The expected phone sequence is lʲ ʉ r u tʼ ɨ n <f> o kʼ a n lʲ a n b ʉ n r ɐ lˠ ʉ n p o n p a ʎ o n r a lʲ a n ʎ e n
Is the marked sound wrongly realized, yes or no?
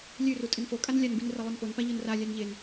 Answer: no